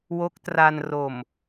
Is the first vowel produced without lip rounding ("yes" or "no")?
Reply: no